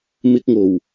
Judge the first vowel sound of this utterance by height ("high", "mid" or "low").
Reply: high